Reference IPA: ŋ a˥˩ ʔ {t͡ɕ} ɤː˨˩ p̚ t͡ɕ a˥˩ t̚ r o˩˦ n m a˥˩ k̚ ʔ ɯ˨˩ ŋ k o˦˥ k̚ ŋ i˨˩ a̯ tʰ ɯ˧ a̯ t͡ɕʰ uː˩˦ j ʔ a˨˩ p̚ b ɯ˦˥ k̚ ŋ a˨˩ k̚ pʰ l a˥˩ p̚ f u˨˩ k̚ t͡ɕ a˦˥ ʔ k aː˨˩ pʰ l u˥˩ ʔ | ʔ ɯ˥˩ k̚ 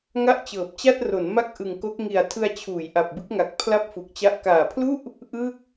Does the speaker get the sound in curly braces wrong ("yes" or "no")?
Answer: no